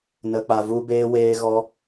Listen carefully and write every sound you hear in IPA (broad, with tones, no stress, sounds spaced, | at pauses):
n ə˧ k͡p a˧ v u˦ b eː˦ w eː˦ ɣ ɔ˦